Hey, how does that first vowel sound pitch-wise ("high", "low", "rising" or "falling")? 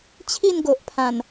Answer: falling